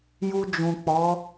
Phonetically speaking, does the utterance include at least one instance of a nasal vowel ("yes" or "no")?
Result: yes